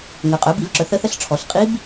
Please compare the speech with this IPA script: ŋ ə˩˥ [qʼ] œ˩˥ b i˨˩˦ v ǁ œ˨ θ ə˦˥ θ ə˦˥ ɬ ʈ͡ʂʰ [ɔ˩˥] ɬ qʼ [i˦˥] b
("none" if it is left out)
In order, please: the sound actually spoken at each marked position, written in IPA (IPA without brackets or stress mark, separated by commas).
qʼ, ɔ˩˥, i˦˥